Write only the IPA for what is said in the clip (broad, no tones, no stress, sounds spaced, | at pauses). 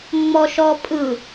ŋ͡m ɔ ʃ ɔ pʼ ɯ